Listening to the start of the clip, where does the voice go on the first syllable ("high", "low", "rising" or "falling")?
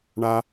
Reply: high